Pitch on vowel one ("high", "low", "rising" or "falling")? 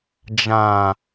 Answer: low